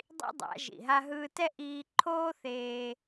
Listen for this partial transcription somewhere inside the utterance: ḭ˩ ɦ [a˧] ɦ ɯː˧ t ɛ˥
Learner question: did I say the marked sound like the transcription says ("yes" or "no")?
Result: yes